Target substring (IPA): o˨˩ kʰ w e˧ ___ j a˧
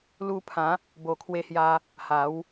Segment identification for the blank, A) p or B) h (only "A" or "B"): B